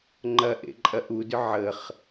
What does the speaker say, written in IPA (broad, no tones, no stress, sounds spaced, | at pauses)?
ŋ͡ǃ ɐ ʔ ḛ ǃʼ ɐ ʔ u d ʏ ʕ ə χ